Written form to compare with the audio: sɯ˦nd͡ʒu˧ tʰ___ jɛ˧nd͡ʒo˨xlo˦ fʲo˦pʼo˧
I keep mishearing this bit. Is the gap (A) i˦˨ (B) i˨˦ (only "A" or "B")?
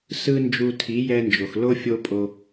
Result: B